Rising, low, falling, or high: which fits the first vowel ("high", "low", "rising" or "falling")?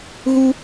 high